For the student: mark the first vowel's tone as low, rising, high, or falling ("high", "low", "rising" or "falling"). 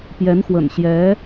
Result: rising